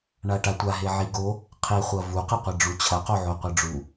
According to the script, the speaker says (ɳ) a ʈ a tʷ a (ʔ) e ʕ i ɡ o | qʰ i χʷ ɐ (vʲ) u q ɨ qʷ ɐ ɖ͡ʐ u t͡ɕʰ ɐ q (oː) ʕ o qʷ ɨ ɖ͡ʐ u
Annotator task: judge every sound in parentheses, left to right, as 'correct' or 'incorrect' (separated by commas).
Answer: correct, incorrect, incorrect, incorrect